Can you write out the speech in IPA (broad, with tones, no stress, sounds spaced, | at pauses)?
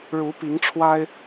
ɻ u˨˦ p i˨˦ ŋ ʈ͡ʂʰ w a˦ ɪ̯